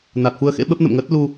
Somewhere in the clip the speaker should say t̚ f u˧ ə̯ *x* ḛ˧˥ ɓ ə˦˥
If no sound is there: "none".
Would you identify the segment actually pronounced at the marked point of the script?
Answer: x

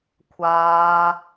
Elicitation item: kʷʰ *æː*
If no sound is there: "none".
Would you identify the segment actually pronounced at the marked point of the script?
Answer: aː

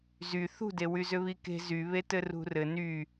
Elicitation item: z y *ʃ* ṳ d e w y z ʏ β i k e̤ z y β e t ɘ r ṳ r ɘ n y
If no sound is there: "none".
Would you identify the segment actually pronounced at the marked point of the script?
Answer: θ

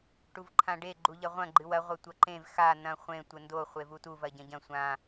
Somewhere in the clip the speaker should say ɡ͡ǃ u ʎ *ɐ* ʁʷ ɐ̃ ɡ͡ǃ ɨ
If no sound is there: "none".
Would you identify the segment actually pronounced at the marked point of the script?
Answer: ɐ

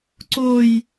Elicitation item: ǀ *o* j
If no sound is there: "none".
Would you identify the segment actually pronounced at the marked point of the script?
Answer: o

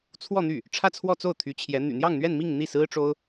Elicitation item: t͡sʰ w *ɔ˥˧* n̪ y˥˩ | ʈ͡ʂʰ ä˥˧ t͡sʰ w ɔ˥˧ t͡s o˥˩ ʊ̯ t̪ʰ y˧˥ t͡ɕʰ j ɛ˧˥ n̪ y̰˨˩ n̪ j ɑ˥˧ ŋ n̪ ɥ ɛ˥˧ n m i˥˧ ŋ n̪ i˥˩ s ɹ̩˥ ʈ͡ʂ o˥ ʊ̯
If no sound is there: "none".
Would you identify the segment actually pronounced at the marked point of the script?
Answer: ɔ˥˧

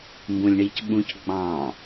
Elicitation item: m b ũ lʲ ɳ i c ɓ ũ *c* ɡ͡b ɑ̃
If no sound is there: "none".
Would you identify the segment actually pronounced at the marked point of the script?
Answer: c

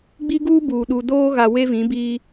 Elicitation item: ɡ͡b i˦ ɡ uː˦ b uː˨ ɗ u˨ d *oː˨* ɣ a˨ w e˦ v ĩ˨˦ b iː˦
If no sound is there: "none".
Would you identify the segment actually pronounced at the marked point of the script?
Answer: oː˦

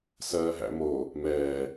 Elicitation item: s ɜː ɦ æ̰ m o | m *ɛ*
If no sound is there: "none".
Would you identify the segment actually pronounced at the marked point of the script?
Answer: ɛː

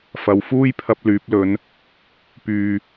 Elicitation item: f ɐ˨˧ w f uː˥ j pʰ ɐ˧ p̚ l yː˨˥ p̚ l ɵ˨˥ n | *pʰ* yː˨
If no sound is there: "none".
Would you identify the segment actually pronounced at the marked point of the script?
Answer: p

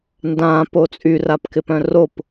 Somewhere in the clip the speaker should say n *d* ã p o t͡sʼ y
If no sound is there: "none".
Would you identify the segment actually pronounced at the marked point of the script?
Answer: d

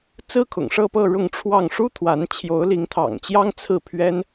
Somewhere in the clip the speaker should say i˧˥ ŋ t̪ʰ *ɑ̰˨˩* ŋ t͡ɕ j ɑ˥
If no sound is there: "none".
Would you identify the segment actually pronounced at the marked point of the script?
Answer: ɑ̰˨˩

